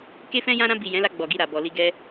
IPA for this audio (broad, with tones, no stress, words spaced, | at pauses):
ke˦fɛ̃˦ jã˧ɾã˧bi˨ jɛ̃˨˦la˧ ɡ͡bɔ˨ɡi˧ɾa˨ bɔ˨li˧ ɡɛ˧